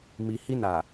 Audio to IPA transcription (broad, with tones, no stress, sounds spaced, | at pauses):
m i˨ h i˧ n a˨